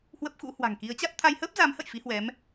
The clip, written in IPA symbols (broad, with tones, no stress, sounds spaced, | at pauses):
h w ə˦˥ p̚ x ṵ˧˥ h w a̤˨˩ ŋ k i˨˦ ə̯ t͡ɕ a˦˥ t̚ t̪ʰ a˧ j h əː˦˥ p̚ z a˨˦ m h ə̰˧˨ j f i˨˦ h w ɛ˨˦ m